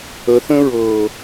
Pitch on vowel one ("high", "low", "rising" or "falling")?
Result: rising